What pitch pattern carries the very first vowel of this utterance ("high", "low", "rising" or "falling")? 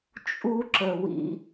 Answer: high